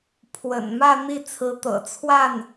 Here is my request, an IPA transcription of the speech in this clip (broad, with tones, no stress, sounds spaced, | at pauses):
pʰ w ə̰˨˩ n m ä˥˧ n̪ i˥˩ t͡sʰ ɹ̩˧˥ t̪ ɤ̰˨˩ t͡sʰ w a˥˩ n